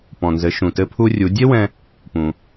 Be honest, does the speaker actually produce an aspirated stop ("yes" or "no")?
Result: yes